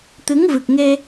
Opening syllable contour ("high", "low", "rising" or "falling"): rising